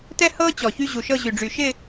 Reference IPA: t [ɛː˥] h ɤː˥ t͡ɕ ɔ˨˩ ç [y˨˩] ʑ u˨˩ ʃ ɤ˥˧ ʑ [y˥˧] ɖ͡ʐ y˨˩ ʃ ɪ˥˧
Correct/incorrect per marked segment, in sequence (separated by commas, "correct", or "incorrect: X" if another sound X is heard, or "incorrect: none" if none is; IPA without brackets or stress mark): incorrect: ɛ˥, incorrect: y˥, incorrect: y˨˩